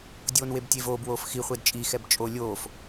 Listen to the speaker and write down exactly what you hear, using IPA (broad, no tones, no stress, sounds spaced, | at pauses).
dʲ oː n w e b tʲ e v oː b w oː f x i χʷ e d t͡ʃʼ i x ɛ b t͡ʃʼ o lʲ oː f